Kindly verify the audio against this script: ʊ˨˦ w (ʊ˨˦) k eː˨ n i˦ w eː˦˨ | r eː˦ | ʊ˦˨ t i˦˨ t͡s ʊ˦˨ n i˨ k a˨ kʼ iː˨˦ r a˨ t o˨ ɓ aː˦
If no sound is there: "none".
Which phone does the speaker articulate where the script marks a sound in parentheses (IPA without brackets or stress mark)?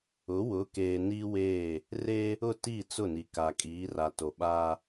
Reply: ʊ˨˦